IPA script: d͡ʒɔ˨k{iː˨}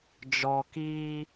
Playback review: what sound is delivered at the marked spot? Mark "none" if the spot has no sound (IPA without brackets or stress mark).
iː˦